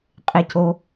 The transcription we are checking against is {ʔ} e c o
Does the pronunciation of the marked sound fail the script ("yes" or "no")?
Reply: yes